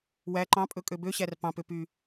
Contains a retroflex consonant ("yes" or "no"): no